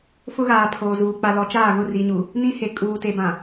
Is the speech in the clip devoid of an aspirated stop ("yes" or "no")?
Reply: no